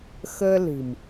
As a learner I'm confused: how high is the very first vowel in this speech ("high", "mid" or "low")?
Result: mid